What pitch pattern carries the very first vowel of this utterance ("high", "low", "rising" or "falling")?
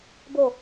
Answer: falling